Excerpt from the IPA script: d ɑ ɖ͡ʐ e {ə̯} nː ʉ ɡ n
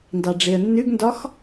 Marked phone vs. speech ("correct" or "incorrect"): correct